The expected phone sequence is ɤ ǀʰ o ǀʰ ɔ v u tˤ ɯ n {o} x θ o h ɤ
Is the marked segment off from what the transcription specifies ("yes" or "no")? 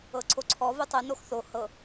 no